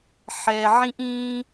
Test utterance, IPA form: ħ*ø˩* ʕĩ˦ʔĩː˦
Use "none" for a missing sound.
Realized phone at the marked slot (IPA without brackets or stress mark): ɛ˩